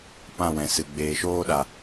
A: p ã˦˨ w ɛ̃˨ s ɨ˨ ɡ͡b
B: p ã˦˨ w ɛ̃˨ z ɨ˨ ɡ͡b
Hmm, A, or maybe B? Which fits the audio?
A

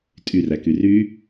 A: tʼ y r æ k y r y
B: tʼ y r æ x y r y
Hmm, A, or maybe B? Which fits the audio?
A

